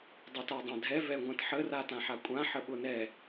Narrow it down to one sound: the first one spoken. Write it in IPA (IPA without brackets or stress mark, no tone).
dˤ